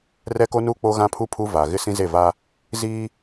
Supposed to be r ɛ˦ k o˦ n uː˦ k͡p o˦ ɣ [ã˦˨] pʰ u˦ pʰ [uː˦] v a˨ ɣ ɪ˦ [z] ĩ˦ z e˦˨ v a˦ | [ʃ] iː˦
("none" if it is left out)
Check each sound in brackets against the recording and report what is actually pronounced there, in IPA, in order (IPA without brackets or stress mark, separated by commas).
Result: ã˦, u˦, s, z